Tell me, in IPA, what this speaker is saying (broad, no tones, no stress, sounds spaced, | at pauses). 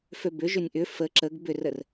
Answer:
f ø b ʏ ʒ ʏ nʲ ʔ ʏ f ə ǁ ə ɡ b ʏ r ə r